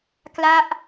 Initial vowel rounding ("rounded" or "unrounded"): unrounded